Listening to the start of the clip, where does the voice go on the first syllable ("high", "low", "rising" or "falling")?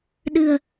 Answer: low